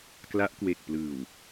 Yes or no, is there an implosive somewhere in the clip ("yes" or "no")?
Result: no